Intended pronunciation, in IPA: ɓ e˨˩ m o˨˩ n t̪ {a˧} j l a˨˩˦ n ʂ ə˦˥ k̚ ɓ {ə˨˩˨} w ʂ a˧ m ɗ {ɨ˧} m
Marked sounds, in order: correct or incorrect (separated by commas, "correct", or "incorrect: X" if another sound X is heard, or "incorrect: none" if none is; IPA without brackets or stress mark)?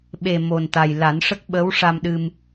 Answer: incorrect: a˨˩, incorrect: ə˧˥, correct